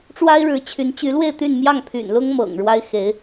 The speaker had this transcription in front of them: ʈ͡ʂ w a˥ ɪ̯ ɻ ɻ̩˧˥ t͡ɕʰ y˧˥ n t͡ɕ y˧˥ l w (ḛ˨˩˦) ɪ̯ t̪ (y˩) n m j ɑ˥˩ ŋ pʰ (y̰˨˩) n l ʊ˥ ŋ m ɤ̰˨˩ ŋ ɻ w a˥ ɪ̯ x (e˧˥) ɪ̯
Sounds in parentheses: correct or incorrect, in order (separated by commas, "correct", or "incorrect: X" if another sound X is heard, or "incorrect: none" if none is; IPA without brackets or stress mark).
incorrect: e˥˧, incorrect: y˥˧, correct, correct